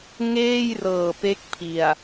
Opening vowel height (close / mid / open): mid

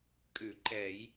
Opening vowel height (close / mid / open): close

